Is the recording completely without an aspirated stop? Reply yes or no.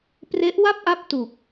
yes